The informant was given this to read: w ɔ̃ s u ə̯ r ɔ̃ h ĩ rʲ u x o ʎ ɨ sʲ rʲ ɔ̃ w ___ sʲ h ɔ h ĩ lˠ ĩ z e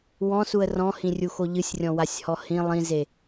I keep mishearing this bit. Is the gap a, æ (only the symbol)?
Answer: a